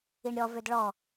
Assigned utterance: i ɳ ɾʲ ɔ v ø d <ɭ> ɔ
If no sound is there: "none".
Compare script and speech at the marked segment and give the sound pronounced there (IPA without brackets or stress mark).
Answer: ɭ